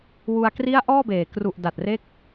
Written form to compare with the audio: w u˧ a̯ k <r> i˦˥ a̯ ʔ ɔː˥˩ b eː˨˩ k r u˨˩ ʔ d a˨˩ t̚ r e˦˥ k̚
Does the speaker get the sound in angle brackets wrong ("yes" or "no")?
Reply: no